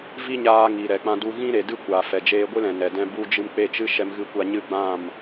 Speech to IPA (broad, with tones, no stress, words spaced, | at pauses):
vi˦ɲaː˧ ŋi˨ɾɛ˨k͡pã˧ du˧ ɣĩ˦ɾe˨ dɨ˦ kʷaː˨fɛ˨ d͡ʒeː˧ɡʷɨ˦ lɛ̃˨nɛ˨dɛ̃˧ bu˧ d͡ʒɨ˧mk͡pe˦˨t͡ʃɨ˦ ʃɛ˧mɣɨ˦˨kʷa˧ ɲɨ˧ɡ͡bã˦˨m